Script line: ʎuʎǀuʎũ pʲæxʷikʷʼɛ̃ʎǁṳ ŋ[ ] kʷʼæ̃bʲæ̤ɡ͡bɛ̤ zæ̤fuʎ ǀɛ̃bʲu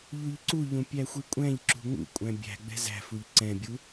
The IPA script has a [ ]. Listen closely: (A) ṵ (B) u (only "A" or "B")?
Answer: A